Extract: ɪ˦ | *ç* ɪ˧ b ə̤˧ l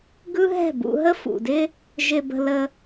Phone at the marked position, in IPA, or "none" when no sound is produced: ʒ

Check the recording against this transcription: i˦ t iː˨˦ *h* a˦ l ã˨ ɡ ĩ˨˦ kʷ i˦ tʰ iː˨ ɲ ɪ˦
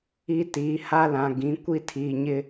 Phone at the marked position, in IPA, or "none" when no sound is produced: h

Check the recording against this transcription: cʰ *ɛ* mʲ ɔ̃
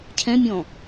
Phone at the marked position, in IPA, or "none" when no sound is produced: ɛ̃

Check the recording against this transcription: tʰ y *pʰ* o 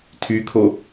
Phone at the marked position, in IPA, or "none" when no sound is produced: kʰ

